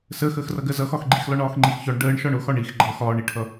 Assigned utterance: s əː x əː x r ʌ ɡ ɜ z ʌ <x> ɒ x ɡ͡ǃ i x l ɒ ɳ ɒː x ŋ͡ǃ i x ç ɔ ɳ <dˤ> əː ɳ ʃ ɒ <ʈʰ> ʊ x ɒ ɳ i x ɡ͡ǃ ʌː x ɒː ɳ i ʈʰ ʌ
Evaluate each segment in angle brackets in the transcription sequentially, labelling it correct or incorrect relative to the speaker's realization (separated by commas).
correct, incorrect, incorrect